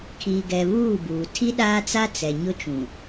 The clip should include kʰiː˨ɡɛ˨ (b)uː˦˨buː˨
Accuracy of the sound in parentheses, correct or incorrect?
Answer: incorrect